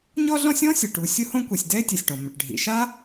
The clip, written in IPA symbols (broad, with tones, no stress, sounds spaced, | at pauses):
ɲ ɔ˥ ɮ ɔ̃˥ sʲ ɔ̃˥ sʲ ʊ˩ ʈ u˩ sʲ ʊ˥ h õ˥ kʷ ɛ˩ sʲ d ɛ˥ ɪ̯ tʲ e˩ sʲ ʈ õ˩ mː ɪ˩ ʈ ɖʱ ḭ˩ ʃ a˥